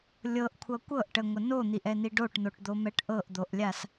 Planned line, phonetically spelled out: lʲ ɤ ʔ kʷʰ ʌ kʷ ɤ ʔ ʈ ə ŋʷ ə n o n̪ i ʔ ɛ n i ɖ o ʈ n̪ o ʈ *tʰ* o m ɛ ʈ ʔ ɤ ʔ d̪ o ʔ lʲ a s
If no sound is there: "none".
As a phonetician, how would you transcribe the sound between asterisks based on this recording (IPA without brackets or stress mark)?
d̪